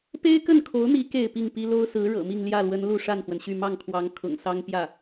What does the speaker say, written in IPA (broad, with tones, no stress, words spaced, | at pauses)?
pe˥ɪ̯kə˥˩nkʰo˧˥ʊ̯n̪i˧˥ ke˥˧ɪ̯pi˥˩ŋpi˥ lo˥ʊ̯sɹ̩˧˥ ɻɤ̰˨˩mi˥˧ŋ ljä˥˩lwə˧˥n lu˥˧ʂa˥˩nxwə˩nɕy˥˧ mɑ˥˩ŋkʰwɑ˧˥ŋ kʰʊ̰˨˩ŋsɑ˥ŋ pjä˥˩